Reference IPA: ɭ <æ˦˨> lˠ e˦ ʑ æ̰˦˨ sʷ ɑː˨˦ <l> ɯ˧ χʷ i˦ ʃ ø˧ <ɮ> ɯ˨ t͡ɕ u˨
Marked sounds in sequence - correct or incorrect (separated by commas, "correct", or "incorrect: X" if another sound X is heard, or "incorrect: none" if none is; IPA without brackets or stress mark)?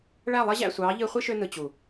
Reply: correct, incorrect: ʎ, incorrect: n